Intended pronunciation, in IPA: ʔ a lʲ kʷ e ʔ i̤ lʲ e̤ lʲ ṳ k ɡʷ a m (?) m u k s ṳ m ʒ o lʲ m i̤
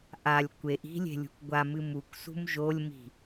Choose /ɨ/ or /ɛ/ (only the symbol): ɨ